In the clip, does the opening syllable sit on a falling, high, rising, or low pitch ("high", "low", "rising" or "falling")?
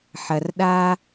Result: low